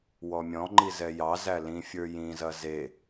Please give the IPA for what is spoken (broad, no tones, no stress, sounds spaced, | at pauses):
w ɔ mʲ ɔ̃ ŋ͡ǃ i z ɛ j ɑ z æ l ĩ fʲ ə˞ j ĩ z ɐ z e